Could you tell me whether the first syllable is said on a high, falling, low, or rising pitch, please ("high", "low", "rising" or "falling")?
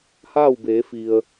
falling